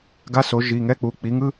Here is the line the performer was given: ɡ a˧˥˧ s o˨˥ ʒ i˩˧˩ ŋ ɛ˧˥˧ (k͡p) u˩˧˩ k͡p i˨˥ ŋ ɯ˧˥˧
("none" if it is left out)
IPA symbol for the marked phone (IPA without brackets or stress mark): k͡p